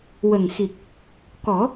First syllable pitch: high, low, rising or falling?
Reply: low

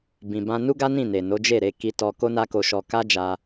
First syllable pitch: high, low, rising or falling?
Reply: low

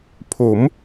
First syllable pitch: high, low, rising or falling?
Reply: rising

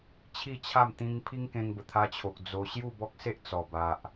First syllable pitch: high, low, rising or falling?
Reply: falling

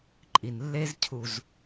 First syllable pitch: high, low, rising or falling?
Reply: low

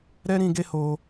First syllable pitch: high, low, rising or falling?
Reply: high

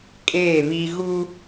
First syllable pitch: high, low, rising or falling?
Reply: falling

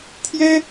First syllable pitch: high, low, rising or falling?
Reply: high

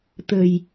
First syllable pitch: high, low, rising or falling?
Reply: low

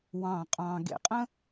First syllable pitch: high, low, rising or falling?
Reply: low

